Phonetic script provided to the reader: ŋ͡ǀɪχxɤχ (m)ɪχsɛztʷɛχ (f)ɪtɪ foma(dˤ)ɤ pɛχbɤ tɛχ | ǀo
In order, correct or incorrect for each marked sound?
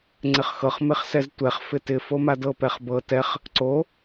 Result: correct, correct, incorrect: d

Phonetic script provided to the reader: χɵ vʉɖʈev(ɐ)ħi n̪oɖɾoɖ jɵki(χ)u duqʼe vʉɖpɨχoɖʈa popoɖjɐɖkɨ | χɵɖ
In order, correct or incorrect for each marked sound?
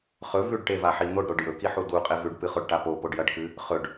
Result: incorrect: a, incorrect: ħ

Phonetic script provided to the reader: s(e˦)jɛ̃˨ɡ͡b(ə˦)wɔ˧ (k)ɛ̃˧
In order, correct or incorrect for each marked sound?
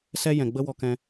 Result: incorrect: ɛ˦, correct, correct

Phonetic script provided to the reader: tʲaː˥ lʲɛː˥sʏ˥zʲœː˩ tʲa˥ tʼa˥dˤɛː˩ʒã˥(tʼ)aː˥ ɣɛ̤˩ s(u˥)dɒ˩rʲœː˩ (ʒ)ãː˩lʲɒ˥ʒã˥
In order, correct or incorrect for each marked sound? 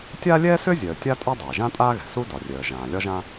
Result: correct, correct, correct

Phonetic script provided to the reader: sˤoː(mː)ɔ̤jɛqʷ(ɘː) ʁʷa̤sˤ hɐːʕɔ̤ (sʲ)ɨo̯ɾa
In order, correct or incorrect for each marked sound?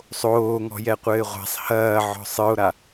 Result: incorrect: ŋ, correct, incorrect: sˤ

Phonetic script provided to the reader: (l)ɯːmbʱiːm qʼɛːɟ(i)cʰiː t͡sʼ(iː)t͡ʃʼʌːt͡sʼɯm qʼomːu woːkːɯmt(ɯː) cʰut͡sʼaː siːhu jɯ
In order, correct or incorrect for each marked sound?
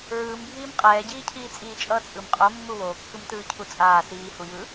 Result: incorrect: ɹ, incorrect: iː, correct, correct

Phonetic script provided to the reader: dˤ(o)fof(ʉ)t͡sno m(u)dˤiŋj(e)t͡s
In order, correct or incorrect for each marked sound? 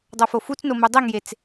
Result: correct, incorrect: u, correct, correct

